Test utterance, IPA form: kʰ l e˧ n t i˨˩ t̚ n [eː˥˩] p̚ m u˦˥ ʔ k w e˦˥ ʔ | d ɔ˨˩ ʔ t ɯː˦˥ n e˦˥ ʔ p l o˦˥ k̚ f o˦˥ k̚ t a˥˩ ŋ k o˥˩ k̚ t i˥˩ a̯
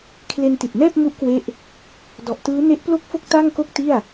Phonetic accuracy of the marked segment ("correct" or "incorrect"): incorrect